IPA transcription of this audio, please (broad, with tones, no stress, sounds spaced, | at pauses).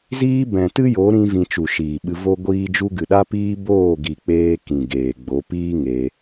z iː˦ b ɛ̃˨ t ɨ˦ j o˨˦ ɾ ĩ˦ v ĩ˧ t͡ʃ u˨ ʃ iː˨ ɓ ɨ˧ v o˦ ɡʷ iː˦ d͡ʒ u˦ ɡ ɨ˨ ɗ a˦ p iː˦ b oː˦˨ ɡ i˨ k͡p eː˧ k ĩ˨ ɡ eː˨ ɡ͡b o˨˦ p iː˦ ŋ e˧